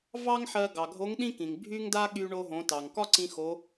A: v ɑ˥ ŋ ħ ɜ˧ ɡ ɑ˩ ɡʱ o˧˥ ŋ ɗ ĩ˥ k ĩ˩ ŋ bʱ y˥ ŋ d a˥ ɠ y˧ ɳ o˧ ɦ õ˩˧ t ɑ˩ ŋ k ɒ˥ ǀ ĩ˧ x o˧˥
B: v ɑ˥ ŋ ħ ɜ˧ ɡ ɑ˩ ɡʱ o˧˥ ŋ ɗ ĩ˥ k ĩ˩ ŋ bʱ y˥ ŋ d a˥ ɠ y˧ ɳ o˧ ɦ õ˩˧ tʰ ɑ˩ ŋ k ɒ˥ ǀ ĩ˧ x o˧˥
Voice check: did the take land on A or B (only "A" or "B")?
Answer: A